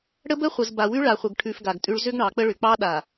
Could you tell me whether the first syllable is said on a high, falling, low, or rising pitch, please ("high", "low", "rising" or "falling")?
high